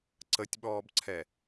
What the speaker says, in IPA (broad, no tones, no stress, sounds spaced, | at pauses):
ǀ ə tʲ ɓ ɔː b ǀʰ ɛ